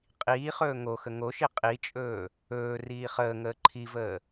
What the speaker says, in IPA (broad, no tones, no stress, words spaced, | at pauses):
qʼiːχɵː ŋoxə ŋoʃi qʼit͡ʃʼɵː | ɵː riːχəːŋəː ǃʰivəː